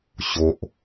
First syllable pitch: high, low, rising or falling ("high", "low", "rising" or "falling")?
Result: high